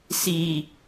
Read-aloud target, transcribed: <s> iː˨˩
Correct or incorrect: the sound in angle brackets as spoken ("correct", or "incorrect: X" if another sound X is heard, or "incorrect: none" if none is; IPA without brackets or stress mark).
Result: correct